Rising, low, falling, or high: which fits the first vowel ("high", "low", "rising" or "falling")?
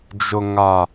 low